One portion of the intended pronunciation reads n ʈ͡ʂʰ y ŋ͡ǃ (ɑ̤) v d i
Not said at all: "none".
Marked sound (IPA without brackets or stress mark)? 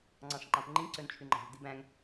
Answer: ɑ̤